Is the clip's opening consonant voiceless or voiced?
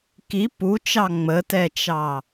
voiceless